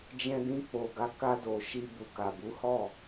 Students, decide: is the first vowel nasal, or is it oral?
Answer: nasal